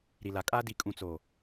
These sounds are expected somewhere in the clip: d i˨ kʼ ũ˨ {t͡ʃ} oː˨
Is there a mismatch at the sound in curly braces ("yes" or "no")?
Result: yes